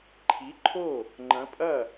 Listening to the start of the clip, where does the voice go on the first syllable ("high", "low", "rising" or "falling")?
rising